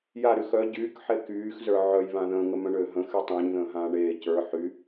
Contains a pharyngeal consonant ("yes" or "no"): yes